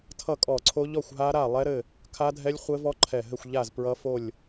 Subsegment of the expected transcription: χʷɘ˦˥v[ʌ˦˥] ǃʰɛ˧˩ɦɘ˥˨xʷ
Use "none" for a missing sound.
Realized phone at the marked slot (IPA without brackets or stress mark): ɔ˦˥